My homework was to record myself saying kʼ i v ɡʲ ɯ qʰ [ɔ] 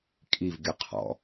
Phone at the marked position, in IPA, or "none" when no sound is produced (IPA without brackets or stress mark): ɔ̰